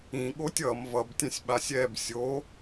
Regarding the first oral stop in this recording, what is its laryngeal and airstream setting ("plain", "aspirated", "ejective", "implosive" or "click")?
implosive